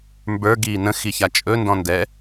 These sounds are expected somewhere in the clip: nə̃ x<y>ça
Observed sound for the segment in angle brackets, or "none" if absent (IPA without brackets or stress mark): i